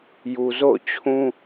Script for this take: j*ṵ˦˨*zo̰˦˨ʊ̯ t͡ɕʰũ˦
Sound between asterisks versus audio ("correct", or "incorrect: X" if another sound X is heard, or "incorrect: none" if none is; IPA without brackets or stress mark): incorrect: u˨